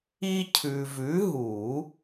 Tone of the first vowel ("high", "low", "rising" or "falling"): high